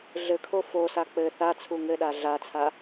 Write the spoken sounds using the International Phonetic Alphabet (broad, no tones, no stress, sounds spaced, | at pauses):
ɮ ɘ kʰ o f o s a k͡p ɘ θ a t͡sʰ u ŋ ɘ ɗ a ɮ a t͡sʰ a